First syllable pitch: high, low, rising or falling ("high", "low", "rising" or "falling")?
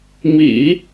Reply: low